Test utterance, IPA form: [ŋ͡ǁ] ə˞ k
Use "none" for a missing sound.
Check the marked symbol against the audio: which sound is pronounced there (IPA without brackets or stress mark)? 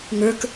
ŋ